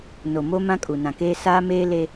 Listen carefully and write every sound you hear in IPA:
n o˨ m o˦ m ã˦ kʼ u˨ n ã˨ k eː˦ s aː˦ m eː˦ l e˦

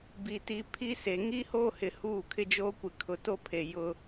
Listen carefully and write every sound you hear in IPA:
b i˨ t i˨ pʰ i˦ s e˨ ŋ iː˦ h oː˦ h ɪ˨ h uː˦˨ kʰ ɪ˦ d͡ʒ oː˦ kʷ ɪ˨ kʰ ʊ˨ t o˦ pʰ e˨ j ʊ˦

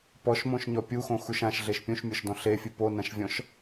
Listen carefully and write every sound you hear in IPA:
p ɔ ʃ m õ ʃ ɲ ɔ pʲ u x õ x u ʃ ã ʃ ɮ e ʃ pʲ ũ ʃ mʲ ɔ ʃ d ɔ̃ ɬ e fʲ ɨ p o n ã ʃ vʲ ɔ̃ ʃ

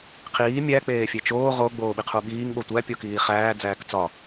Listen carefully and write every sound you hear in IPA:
qʰ iː mʲ æ k͡p eː fʲ e t͡ʃ oː ʁ o ɡ͡b oː ɓ i qʰ u ɓ iː ŋ ɓ o tʷ æ pʲ o k iː χ æː d͡z æː k t͡s ɒ

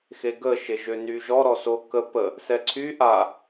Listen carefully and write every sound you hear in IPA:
x e ɡ ə ʃ e ʒ ø n y ʒ ɔ ɾ ɔ s o k ə p ə | s ɛ ǀʰ y ʔ a

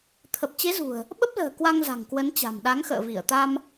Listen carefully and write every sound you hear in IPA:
t̪ʰ ə˨˩ p̚ t͡ɕ e˨˦ z ṳ˨˩ ə̯ | ɓ ə˦˥ p̚ l ə̤ː˨˩ k w a˧ ŋ z a̤˨˩ ŋ k w ə˨˦ n t͡ɕ a̤˨˩ m ɗ a˨˦ ŋ x ə̰ː˧˨ v i˧˩ ə̯ t̪ a˧ m

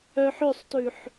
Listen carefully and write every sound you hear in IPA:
œ ħ ø sˤ t ʉ ħ

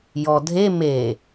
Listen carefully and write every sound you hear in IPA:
j ɔ dʱ e m e

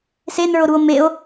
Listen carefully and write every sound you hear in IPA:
s e n ə˞ o̯ ɾ u o̯ m e o̯

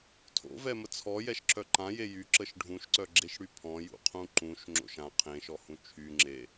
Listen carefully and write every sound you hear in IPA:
tʰ o̰ v ɛ m ə t͡sʰ ɔ j ɛ ʃ ǁ œ ǃ ã j e j y ǁ ə ʃ ɖʱ ũ ʃ ǀ œ ɡ͡ǁ e ʃ ɽ y pʰ ɔ̃ j ṵ qʰ ũ ǃ ũ ʃ ŋ͡ǁ o̰ ʃ ã qʰ ẽ ʃ ɔ h ũ t͡ʃʰ y ŋ͡ǁ e

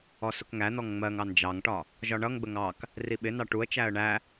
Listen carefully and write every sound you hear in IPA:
ɔ s ʊ k ŋ æ n̪ ɔ ŋ ŋ͡m ɜ ŋ ɑ n d͡ʒ ɑ ŋ ʈ ɒ | ʒ ɒ ɳ ʌ ŋ ɡ͡b ə ŋ ɑ k | r i ɓ ɪ n ɑ ʈ u ə̯ t͡ʃ æ ə̯ ɳ æ

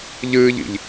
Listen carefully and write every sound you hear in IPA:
ʎ ɨː ʎ ḭ ʎ

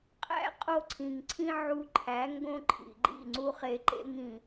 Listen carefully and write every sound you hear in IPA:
qʼ æ̰˦ qʼ o˦ ǀʰ ĩ˨ ŋ ǀʰ ĩ˦ ʕ u˧ ǃʰ æ˨˦ ŋ ɡ õ˦ ǃʰ ḭ˨ ɡ͡ǃ ḭ˦˨ ŋ͡ǀ u˦ χ e˧ ǃ ḛ˦ ŋ ĩ˨

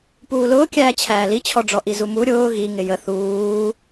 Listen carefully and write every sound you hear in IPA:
p uː l ʊː kʲ æː t͡ɕʰ æː l i t͡ɕʰ ɔ ɖ͡ʐ ɔ ʔ i z u m u ɾʲ ʊː ɣ i ŋ ɪ j ə θ uː

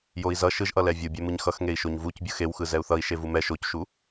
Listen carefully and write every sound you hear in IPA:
j o i̯ z ʌ ʃ ɯ ʒ ʔ ʌ l ɛ vʲ ɯ bʲ ɛ m ɯ ɲ x ʌ x ŋ e i̯ ʃ o ɲ v u c bʲ ɯ x e w x ɯ z ɛ u̯ θ ʌ i̯ ʃ e v u m ɛ ʃ o c ʃ u

